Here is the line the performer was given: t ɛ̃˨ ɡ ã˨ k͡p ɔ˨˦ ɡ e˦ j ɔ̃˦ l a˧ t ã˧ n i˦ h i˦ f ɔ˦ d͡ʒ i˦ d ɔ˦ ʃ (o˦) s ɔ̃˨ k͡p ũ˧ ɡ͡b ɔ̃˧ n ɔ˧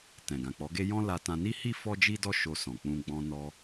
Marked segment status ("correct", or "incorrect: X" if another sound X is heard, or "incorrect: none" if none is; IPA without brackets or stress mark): incorrect: o˧